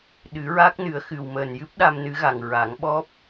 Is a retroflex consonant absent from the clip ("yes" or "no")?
yes